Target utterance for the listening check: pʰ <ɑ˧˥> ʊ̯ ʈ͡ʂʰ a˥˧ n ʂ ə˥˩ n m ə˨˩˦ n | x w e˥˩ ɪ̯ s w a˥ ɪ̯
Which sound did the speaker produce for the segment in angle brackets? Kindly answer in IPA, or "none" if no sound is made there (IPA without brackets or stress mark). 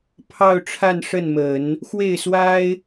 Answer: ɑ˥˧